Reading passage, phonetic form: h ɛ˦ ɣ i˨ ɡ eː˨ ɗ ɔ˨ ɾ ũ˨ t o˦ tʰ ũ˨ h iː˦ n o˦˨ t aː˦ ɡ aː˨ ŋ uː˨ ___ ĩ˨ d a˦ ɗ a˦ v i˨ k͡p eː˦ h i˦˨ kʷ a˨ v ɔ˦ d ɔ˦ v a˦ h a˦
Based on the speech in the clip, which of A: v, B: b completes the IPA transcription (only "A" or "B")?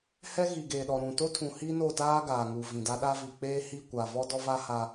A